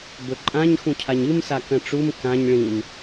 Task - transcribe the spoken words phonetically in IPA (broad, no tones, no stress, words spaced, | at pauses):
bɵǃʼãɲ xũcʰaɲɨm sakɐ̃ʈ͡ʂum kãɲ ɭĩm